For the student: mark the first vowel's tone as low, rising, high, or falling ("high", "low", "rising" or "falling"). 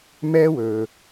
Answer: high